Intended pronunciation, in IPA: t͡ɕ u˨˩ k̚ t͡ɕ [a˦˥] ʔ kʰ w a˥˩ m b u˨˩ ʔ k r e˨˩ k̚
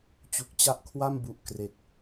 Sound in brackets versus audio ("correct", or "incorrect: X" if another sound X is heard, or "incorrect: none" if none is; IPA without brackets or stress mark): correct